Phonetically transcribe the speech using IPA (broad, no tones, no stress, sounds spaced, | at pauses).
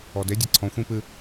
ɔ d e dʲ a ǀʰ ɔ̃ xʷ ĩ p ɨ